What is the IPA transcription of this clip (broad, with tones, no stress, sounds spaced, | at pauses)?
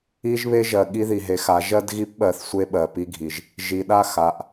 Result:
i˦ ʒ β e˦ ʒ ɜ˨ ɠ i˦ ð i˨ ɦ e˨˦ x a˨˦ ʒ ɜ˦ d ɣ i˦ p ɓ ɜ˨ θ sʷ e˦ ɓ ɜ˨ p i˦ ɡʱ i˨ ʒ | ʒ i˨ ɗ a˦˨ x a˨ ʔ